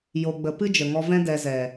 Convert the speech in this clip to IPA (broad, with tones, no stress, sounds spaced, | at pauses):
j o˧ ɡ͡b ə˧ p ɨ˦ d͡ʒ ə˨ ŋ ɔ˧ v ɛ̃˦ d ɛ˧ z ɛ˨